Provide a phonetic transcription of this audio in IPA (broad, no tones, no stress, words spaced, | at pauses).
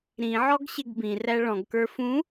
ɾĩʕɔɡɕɪɡ bĩræ ɭɔ̃ɡkə˞ fũ